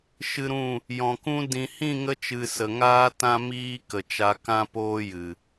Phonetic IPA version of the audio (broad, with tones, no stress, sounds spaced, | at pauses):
ʃ ɨ˧ ɾ ũ˦˨ | j ɔ̃˨ k ũ˦ d ĩ˨ h ĩ˦˨ ŋ ə˧ t͡ʃ ɨ˨ s ə˨ ŋ aː˦ t ã˦ m iː˦ k ə˨ t͡ʃ a˧ k ã˦ p oː˦ j ɨ˨